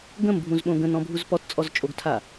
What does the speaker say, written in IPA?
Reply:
ɡ ə̃ m bʱ ũ z ɓ õ ɡ ə̃ n ɔ̃ bʱ u z p ɔ t t͡sʼ ɔ z t͡ʃʼ o ɡ tʰ a

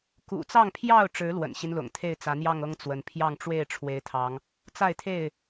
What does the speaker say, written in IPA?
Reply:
k ṵ˨˩ t͡s ɑ˥˨ ŋ pʰ j ɑ˥˨ ʊ̯ ʈ͡ʂ ɻ̩˨˦ l w ə̰˨˩ n ɕ i˦ n l ʊ̰˨˩ ŋ t̪ʰ e˥˨ ɪ̯ t͡s ä˨˦ n̪ j ɑ˥˨ ŋ ɤ˦ ŋ t͡s w ə˨˦ n pʰ j ɑ˥˨ ŋ ʈ͡ʂ w e˥˨ ɪ̯ ʈ͡ʂʰ w e˨˦ ɪ̯ t̪ʰ ɑ˨˦ ŋ | t͡s a˥˨ ɪ̯ t̪ʰ e˥˨ ɪ̯

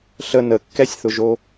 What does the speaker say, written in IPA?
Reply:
ɬ ə n ə kː ɛ sʲ θ ʊ ʒ o

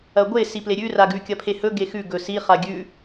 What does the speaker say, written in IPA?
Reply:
ɐ ɡʷ e s i p l e ɾʲ ʉ r a ɡ ʉ kʲ ɐ pʰ e h ɵ ɡ e x ʉ ɡ ɵ s i χ a ɡʲ ʉ

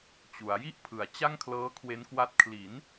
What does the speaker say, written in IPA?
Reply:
t͡ɕ u˩˦ a̯ j i˥˩ ʔ pʰ ɯ˨˩ a̯ t͡ɕ a˥˩ ŋ kʰ l ɤː˦˥ kʰ w e˦˥ n k w a˦˥ t̚ kʰ l i˩˦ n

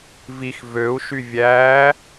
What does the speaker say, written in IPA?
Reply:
v i x v ø u̯ ʃ y vʲ æː

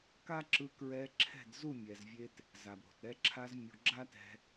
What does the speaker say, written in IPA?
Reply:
k a˦ ǁ ɯ˧ k ɹ ɛ˧ ǁʰ ɛ̤˦˨ d z u˦˨ mʲ ɛ˨ z vʲ e˧ t | z a˨ b ɾ o̤˨ t ɾ ɛ˧ ǁʰ a˧ z mʲ u˨ ɡ͡ǁ a˦ t ɛ̤˧

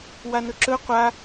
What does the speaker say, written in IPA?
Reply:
w a n ɵ ǁ ɵ qʷ a

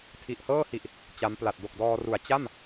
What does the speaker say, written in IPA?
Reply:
tʰ i˨˩ ʔ h ɤː˥˩ h i˨˩ ʔ | t͡ɕ a˦˥ m p l a˨˩ t̚ d o˨˩ k̚ d ɔː˧ r u˩˦ a̯ t͡ɕ a˥˩ m

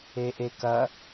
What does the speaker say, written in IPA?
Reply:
e ʔ e k ɐ

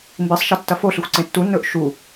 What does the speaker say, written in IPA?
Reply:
m b i sˤ ʃ ɐ tː ɐ f o ɬ ɨ xʷ ǀ ẽ tː u nː ɵː ʔ ʃ u

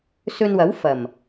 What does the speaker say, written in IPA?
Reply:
s ɵ˧ n w ɐ˨˥ w f ɐ˨˩ m

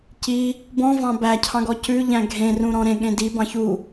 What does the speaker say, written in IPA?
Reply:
c i | b ɔ̃ v ɑ̃ b æ cʰ ɑ̃ ɡ ɔ c ʉ ʎ æ̃ ɡʱ ẽ r ũ ɾ ɔ̃ ɾ ẽ ɠ ẽ d i b ɑ̃ ç u

